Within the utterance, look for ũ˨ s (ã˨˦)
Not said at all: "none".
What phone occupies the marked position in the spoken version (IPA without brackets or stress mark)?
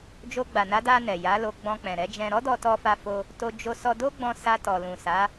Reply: a˨˦